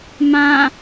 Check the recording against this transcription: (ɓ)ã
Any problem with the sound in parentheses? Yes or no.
yes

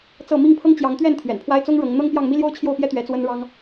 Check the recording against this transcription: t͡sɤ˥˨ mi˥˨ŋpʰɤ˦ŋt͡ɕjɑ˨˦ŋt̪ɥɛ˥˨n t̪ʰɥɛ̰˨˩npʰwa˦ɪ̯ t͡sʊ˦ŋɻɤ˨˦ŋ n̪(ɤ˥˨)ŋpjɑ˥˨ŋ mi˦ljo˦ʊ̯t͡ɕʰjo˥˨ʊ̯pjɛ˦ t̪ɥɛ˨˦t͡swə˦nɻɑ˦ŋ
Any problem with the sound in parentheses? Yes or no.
yes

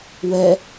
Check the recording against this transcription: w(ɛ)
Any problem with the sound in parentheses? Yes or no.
no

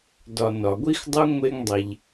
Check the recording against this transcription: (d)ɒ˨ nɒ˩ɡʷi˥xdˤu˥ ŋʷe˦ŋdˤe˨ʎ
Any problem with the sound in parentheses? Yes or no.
no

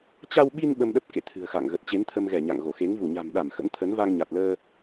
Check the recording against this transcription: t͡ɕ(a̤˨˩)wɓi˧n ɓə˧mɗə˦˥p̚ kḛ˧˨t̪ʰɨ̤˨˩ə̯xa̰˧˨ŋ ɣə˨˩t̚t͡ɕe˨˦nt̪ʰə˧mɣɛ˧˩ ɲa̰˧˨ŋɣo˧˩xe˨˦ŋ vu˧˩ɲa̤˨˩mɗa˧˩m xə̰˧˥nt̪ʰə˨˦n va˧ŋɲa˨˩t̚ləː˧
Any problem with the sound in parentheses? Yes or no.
yes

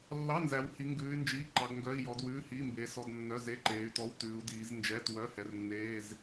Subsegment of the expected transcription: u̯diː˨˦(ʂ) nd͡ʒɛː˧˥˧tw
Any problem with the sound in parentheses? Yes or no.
yes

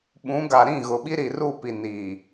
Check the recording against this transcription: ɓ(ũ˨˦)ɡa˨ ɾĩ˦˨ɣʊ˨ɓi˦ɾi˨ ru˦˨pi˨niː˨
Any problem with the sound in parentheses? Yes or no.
no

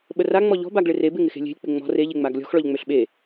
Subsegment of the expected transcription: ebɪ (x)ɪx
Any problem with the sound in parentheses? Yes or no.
yes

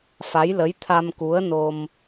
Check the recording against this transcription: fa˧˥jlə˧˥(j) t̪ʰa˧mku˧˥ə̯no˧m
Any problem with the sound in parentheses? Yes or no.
no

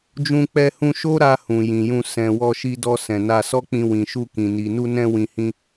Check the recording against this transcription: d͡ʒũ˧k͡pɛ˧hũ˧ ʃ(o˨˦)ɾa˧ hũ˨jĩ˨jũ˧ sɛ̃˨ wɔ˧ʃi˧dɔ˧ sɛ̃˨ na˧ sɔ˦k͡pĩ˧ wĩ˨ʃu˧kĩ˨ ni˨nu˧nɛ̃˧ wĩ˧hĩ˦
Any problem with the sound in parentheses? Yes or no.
yes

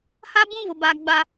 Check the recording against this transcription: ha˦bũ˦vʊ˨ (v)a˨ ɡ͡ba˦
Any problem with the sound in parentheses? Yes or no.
yes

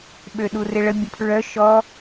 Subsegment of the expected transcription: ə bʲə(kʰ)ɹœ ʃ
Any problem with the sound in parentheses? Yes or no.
yes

